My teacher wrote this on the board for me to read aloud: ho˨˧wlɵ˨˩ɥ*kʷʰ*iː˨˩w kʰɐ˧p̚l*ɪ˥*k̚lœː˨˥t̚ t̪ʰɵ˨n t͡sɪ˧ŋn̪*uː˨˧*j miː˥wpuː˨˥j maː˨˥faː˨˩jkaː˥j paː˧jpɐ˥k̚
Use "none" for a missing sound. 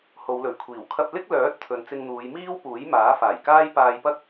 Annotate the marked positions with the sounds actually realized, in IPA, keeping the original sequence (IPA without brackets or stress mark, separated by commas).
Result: kʷʰ, ɪ˥, uː˨˧